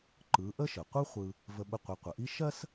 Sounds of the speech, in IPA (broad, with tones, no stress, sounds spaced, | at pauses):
ǃ ɯ˩˧ ʔ ə˥ ʃ ə˩ qʷ ɯ˥ χʷ ɯ˧ | v ə˧ ɓ ɘ˧ qʷ ɯ˩˧ qʷ ə˩ ʔ i˥ ʃ ɜ˥ s